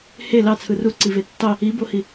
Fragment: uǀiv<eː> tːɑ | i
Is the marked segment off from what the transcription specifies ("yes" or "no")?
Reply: yes